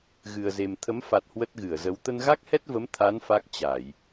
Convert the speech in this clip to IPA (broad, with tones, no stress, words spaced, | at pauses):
ɣɨ˨˩ə̯ze˨˩m t̪ʰə˨˦mfa˨˩t̚ hwə˦˥t̚ɣɨ˧˩ə̯zə˨˦w t̪ə˧nɣa˦˥k̚hɛ˦˥t̚və˨˦m t̪ʰa˨˦n fa˦˥k̚t͡ɕa˧˩˨j